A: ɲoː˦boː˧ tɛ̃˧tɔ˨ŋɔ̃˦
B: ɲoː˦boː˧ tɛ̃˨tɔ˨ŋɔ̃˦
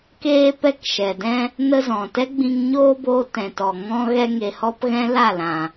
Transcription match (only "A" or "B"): B